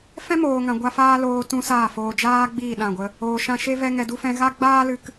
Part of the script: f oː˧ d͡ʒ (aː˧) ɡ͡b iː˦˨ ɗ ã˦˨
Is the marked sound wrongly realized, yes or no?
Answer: yes